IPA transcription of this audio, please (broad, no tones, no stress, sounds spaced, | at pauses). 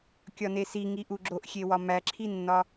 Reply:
kʲ ɒ n e s i ŋ i ʔ u ɡ͡ǁ o ʔ xʲ e w ɒ m æ ǁʰ i nː ɒ